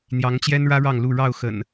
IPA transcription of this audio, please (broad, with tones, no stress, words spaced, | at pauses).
n̪jɑ˨˦ŋt͡ɕjɛ˦nɻä˦ ɻɑ˥˨ŋlu˥˨ ɻɑ˥˨ʊ̯xə̰˨˩n